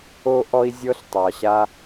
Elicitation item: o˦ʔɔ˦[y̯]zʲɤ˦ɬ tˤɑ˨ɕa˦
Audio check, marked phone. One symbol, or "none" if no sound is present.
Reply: i̯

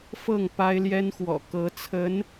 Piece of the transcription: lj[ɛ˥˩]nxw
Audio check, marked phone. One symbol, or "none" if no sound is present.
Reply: ɛ˥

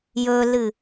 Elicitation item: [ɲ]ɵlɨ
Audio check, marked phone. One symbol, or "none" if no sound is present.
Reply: j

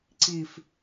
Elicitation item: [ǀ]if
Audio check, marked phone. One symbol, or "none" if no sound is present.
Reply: ǀ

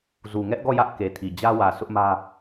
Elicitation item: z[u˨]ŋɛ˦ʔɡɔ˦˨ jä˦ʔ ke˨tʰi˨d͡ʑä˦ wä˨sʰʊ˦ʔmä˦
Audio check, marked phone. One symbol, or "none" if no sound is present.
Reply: u˨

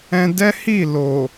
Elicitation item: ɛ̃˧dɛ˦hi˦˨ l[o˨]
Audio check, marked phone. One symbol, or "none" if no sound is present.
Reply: o˨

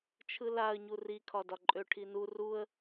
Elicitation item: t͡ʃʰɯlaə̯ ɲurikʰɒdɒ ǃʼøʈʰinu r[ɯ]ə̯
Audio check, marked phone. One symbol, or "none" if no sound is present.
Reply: u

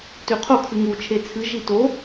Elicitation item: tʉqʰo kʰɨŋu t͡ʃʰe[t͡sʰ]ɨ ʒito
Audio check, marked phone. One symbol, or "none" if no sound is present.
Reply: t͡sʰ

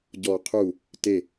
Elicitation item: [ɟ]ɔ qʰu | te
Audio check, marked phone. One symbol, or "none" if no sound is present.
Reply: ɟ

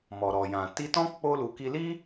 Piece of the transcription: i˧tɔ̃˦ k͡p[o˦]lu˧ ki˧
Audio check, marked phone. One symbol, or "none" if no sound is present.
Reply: o˦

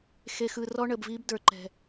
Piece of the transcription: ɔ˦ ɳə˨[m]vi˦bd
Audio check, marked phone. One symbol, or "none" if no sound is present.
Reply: b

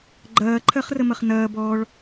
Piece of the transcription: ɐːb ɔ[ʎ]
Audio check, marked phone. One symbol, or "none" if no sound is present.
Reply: ɭ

